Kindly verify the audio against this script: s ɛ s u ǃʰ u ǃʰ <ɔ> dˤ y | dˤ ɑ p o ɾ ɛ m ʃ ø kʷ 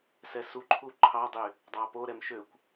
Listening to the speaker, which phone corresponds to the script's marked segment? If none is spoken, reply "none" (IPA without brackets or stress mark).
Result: ɑ